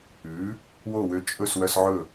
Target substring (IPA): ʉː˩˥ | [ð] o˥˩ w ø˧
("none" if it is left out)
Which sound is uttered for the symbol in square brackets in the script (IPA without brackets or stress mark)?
w